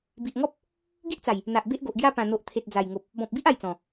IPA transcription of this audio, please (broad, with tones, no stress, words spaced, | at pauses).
bi˨ʔŋɔ˦p̚ | ɡi˦ʔt͡sa˨˩j | n̪a˨ʔbe˦ʔɡo˨ʔɡja˦ pã˨˩n̪o˨ʔ t̪ʰe˨t̚d͡za˨˩jŋo˨p̚ | bɔ̃˨p̚bi˦ʔ a˥˧jt͡sɔ̃˨˩